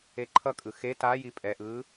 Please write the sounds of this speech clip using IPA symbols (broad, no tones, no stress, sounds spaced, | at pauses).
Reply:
e ǃʰ ʌ kʼ ɯ x e t a j i pʼ ɛ ʔ ɯː